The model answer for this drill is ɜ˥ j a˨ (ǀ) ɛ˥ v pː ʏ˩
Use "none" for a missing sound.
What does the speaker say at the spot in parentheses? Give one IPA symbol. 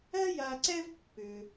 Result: ǀ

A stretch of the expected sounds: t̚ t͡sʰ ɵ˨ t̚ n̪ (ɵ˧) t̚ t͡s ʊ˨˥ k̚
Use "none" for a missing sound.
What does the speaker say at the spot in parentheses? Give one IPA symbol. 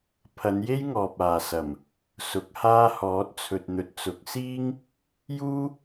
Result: ɵ˨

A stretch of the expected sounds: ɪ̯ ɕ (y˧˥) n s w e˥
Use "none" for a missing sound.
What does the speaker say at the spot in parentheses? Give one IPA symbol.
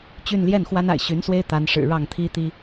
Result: y˧˥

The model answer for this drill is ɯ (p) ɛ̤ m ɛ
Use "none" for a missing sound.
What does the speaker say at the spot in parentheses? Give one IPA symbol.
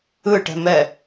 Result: ʈ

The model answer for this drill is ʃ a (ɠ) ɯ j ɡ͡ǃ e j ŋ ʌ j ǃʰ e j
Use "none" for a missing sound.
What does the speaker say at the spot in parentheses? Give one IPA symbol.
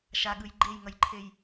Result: ɠ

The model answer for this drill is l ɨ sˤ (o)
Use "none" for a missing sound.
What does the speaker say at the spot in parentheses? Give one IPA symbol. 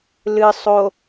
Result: o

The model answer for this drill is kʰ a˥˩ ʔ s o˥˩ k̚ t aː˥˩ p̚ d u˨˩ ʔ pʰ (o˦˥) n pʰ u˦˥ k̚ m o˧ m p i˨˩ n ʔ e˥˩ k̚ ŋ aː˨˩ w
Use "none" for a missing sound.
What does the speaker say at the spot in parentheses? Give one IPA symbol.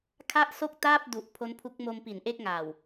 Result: o˦˥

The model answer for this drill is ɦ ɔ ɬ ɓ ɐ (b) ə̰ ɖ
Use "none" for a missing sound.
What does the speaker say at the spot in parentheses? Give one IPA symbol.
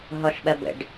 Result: b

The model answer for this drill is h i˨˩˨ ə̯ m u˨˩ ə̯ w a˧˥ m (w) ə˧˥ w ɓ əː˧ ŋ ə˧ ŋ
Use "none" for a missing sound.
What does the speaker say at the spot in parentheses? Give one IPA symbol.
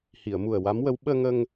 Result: w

